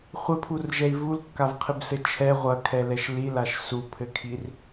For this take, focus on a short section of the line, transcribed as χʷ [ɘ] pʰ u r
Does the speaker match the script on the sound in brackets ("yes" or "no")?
yes